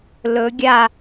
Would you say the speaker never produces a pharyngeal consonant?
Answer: yes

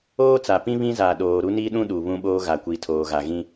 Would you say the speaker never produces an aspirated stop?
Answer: no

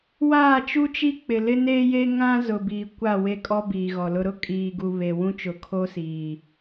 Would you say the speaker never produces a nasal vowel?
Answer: no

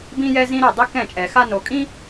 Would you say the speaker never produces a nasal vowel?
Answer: no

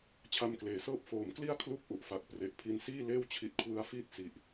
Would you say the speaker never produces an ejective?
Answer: yes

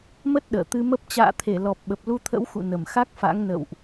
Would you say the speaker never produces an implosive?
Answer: no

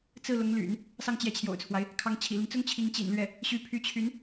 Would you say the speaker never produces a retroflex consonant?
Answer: yes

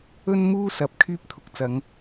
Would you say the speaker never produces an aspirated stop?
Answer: no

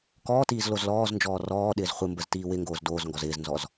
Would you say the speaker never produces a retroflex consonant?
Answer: yes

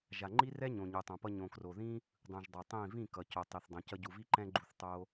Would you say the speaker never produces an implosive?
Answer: yes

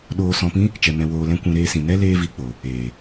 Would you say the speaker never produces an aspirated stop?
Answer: yes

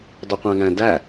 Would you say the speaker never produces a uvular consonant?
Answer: no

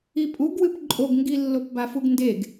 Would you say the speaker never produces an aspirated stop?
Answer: yes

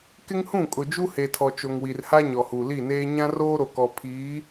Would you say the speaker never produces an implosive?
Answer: yes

